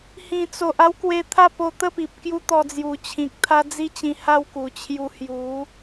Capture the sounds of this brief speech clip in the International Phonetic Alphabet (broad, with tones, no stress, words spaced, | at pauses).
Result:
hĩ˨˩t͡so˨ʔ a˦wkwe˧t̪ʰa˥˧ po˧t̪ə˥˧pi˨p̚ kju˦t̪ɔ˧d͡zju˨˩ t͡ɕʰĩ˨k̚t̪ʰa˦ d͡zi˦t͡ɕĩ˧ ha˥˧wku˨˩ t͡ɕʰju˧ hju˨˦